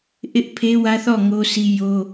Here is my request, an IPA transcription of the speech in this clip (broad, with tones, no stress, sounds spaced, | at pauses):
ʔ ɪ˦ ʔ pʰ e˦ w ä˦ θ ɔ˦˨ ŋ o˦ sʰ i˦ j o˦